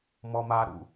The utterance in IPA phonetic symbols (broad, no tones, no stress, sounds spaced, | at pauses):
m ɔ m a ɾ ṵ